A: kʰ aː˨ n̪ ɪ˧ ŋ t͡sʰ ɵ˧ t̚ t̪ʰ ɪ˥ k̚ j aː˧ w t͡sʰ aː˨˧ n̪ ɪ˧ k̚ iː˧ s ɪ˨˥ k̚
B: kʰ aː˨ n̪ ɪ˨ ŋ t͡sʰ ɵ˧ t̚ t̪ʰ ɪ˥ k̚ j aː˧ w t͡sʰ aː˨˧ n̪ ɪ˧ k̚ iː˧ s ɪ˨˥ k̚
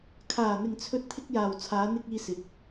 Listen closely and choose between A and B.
B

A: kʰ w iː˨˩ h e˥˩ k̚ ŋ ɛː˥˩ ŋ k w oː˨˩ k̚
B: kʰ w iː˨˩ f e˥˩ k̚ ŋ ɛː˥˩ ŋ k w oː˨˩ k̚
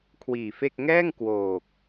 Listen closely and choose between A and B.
B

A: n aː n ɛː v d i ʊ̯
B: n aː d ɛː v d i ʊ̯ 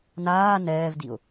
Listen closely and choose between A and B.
A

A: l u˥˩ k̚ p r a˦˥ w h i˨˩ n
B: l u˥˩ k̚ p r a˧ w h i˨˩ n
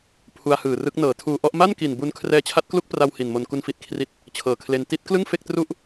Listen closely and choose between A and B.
B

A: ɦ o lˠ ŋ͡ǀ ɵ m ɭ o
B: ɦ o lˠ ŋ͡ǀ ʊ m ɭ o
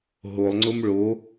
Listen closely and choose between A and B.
B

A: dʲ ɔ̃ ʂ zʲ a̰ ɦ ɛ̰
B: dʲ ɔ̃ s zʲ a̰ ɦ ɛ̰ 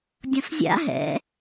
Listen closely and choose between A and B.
B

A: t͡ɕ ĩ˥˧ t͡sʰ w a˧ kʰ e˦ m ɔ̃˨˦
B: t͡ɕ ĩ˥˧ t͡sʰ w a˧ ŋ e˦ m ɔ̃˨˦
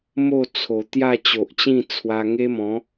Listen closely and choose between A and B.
B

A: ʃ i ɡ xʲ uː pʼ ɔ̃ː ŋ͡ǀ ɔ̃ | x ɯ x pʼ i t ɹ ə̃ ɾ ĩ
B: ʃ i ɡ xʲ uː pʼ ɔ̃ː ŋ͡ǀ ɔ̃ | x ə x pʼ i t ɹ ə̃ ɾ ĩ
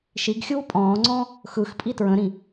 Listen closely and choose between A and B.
A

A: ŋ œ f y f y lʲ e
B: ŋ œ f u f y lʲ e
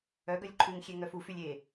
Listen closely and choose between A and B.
B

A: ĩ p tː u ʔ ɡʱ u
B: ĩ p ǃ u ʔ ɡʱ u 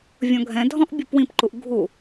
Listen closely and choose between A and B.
B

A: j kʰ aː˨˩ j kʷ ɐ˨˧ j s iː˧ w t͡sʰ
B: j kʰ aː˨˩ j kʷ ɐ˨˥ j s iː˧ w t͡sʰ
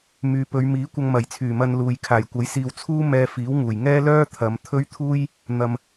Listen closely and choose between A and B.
B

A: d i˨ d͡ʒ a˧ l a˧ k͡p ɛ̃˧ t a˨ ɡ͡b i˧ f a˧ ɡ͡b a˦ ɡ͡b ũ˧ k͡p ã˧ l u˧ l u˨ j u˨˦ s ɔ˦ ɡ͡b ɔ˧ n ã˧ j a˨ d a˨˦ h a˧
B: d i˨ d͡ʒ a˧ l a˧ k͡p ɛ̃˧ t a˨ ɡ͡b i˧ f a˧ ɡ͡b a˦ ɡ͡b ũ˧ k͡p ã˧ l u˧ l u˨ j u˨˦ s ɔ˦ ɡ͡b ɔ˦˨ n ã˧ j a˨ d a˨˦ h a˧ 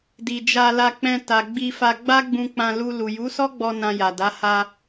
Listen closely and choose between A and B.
A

